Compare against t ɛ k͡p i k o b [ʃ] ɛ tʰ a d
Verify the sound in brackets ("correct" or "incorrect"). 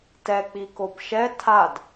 correct